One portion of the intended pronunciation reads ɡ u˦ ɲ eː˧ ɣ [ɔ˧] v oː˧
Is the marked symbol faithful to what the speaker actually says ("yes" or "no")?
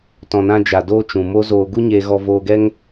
yes